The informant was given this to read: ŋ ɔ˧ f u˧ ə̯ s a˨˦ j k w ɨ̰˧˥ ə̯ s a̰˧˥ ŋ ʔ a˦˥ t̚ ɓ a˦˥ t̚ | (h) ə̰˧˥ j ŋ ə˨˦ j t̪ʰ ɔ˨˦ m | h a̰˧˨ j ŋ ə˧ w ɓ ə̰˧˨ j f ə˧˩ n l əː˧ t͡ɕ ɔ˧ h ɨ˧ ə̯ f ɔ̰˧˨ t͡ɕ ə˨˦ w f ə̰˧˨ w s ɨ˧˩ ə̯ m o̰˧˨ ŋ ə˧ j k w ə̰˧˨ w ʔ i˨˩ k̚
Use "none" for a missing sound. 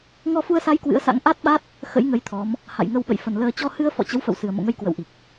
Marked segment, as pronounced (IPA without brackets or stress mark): x